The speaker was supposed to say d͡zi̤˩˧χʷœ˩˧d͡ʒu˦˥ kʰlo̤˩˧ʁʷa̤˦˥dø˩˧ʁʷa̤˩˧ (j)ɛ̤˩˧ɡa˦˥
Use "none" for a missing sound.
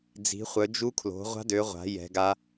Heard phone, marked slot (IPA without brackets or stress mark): j